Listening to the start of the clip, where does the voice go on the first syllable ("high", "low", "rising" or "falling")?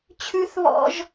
high